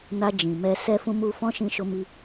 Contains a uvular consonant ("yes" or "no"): no